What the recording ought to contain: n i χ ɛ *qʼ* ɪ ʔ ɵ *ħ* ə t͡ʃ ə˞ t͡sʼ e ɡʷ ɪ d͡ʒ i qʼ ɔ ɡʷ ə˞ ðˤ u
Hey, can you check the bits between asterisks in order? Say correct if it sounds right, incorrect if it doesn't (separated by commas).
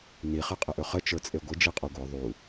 correct, incorrect